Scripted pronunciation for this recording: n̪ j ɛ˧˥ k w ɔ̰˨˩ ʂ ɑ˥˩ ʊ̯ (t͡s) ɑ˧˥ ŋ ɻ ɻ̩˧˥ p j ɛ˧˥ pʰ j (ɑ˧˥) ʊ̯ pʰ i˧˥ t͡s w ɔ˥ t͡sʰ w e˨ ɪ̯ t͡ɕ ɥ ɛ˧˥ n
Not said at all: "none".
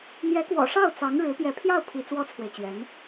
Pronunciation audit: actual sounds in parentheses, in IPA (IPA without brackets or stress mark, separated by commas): t͡s, ɑ˥˩